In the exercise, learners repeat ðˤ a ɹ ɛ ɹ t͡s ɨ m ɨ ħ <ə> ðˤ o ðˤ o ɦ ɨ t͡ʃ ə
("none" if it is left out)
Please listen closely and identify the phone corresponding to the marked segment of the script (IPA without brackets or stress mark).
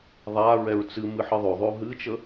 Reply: ɨ